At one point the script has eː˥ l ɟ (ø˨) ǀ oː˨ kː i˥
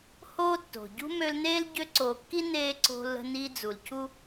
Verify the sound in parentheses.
incorrect: ø˦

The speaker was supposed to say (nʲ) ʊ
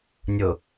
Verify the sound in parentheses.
correct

